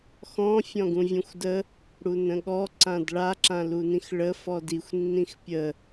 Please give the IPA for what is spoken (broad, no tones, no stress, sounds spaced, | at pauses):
x ɔ̃ fʲ ɔ̃ ɡ ũ vʲ ũ xʷ d ə | ɽ u n ə̃ ɠ ɔ ǀ ã d ɭ a ǁ ã l u n ĩ x ɭ ə f ɔ d i xʷ nː ĩ x pʲ ə